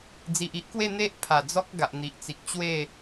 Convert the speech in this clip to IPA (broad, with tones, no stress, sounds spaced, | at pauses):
d͡z i˨ ʔ i˦ ʔ k w e˥˧ n̪ e˦ ʔ pʰ a˨˩ d͡z ɔ˦ k̚ ɡ a˨ ʔ n̪ i˨ ʔ t͡s i˨ k̚ t͡ɕ w e˥˧